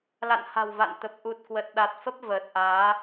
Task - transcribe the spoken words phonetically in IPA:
la̰˧˨nha̤˨˩w va̰˧˨nt̪ə˨˩p̚ ʔu˨˩t̚kwə˨˩t̚ ɗa˨˩t̚fə˦˥p̚ vəː˨˩t̚ʔaː˨˦

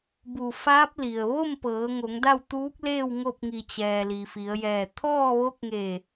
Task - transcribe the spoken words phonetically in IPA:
bu˧˩faː˧˥p̚ li˩ə̯ ʋo˥˨mpɤː˩˧ŋo˩˧ŋ da˥˨w t̪uː˧˥k̚leː˥˨w ŋo˥˨p̚ŋi˧˩ t͡ɕɛː˩ li˩fi˩˧ə̯jɛː˧˩ t̪ʰɔː˥˨ʋo˧˥k̚ŋeː˧˩

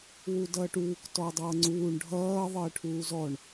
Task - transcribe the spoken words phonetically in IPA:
wudʌːʈuːk tɔɐ̯dˤʌːŋ͡ǀuːɳ ɖʱʌː ðˤəːʈʰuːzɔɳ

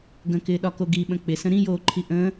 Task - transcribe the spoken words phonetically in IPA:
ɡə̃kɪːɗɒko ɡiɓə̃ k͡pɪsə̃ ɾĩjoːǃʰi ʔə̃ː

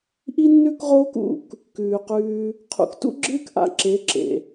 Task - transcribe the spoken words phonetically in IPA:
ʔi˦nːʉ˦kʁoː˦k ṵ˦˨k | kʉː˨qʉː˧ | qʰṵ˨ktṵ˦ɡ͡ǁɨː˦kʔa̰˧ ǁe˨˦ ǁḛ˨

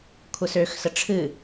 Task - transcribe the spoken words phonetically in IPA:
kʷʰəsøxsə ʈ͡ʂʰɨ

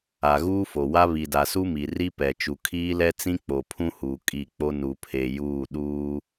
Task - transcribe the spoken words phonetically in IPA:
a˨ɣuː˦fo˨wa˦ βi˨da˨su˦mi˨ ri˦pɛ˨ t͡ʃu˨ kʰiː˦lɛ˦ t͡sĩ˦k͡po˨pʰũ˦huː˨ kʼi˦˨k͡po˦ nu˨pʰe˨ juː˦˨ɗuː˦

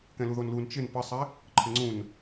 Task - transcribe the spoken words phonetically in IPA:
kɛ̃luðonlun t͡ʃɪn pɘsˤɛ | ǃʰɘŋ͡ǀũn

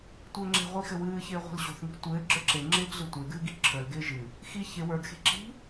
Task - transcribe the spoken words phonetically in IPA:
tʷɘːŋ͡ǁe̤ʁʷi xɘwɨːçɪː ʁʷi̤lɕo̤θŋi̤ tʷɘː ɡ͡ǁə˞ǁeŋ͡ǁɪːɡ ɮɨtʷɪːɡɨː ɡiǁʰə˞lɡɪː ʒɨ | xi çɪ wə˞ɡxe̤ ǁi̤

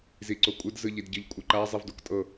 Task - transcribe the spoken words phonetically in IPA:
ziǀokʷʼɯd zɯʎidɟɯʎ kʷʼɯǃa zˤivdoktʼɤ

